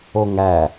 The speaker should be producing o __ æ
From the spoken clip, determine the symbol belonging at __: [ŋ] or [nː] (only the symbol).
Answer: ŋ